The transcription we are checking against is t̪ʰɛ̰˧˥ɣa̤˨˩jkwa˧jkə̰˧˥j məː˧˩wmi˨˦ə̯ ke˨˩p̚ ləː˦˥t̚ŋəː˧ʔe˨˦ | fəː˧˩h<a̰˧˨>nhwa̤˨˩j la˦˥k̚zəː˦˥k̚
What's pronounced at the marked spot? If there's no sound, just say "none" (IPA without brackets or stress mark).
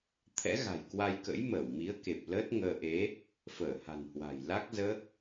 a̤˨˩